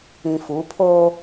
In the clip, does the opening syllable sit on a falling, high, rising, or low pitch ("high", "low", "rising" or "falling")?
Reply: low